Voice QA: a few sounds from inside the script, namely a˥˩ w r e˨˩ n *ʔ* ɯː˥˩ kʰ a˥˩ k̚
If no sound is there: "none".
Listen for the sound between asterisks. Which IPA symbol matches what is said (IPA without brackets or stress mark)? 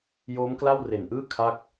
ʔ